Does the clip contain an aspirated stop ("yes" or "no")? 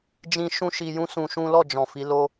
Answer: no